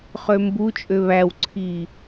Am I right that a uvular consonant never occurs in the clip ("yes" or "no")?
no